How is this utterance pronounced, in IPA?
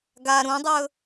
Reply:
ɡ a ɾ ũ dˤ ɵ

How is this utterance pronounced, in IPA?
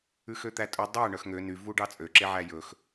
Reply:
ʉ x ø t̪ æ tʼ ɵ dˤ æ ɳ œ x ŋ ø n y v u ɖ ɑ t͡sʼ ø ǁ e ʕ æ j ɵ x

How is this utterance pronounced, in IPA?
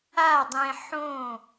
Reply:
a˦˨ dˤ ẽ˧ ħ õ˦˨

